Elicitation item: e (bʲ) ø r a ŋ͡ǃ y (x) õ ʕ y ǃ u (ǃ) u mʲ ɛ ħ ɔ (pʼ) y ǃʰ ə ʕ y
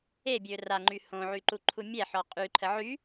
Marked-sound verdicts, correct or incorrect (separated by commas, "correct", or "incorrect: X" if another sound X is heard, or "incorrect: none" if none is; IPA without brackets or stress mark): correct, incorrect: h, incorrect: ǃʰ, incorrect: qʼ